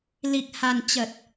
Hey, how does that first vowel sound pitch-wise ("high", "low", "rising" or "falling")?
low